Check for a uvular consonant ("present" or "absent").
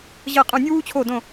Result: present